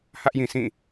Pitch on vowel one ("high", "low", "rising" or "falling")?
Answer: high